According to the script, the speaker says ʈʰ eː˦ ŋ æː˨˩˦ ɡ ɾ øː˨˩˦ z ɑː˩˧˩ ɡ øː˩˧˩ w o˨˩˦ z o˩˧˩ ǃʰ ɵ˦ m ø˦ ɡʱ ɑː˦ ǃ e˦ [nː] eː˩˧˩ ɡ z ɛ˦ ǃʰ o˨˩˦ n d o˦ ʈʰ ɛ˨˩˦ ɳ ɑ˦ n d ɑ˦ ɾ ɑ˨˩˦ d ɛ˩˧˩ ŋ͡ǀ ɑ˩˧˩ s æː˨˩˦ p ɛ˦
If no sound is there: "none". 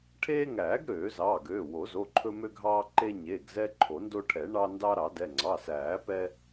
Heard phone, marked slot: ɲ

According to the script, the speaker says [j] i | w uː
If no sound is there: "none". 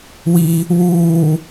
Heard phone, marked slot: w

